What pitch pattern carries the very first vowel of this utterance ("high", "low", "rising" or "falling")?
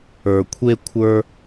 low